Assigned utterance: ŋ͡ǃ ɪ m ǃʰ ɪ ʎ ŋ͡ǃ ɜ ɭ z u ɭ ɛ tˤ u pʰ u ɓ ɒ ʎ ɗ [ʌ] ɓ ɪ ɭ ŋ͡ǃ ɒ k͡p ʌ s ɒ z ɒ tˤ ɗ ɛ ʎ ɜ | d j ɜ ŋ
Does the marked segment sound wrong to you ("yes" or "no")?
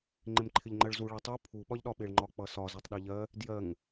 yes